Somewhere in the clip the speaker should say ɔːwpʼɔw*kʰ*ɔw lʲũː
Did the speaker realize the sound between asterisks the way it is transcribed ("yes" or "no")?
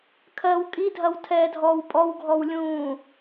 no